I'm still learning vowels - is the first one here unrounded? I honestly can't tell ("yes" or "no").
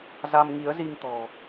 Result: yes